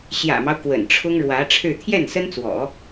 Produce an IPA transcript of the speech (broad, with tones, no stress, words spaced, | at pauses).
ɕjä̰˨˩mɑ˦ʊ̯ kwə̰˨˩nʈ͡ʂʰʊ˥ŋ ɻwä˧˥ ʈ͡ʂʰɻ̩˥˧ t̪ʰjɛ˥˩nsə˥nt͡swɔ̰˨˩˦